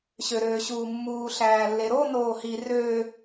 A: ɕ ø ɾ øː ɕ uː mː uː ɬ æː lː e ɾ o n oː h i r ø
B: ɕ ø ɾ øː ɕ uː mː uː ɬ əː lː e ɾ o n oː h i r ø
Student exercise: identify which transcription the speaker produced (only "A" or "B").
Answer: A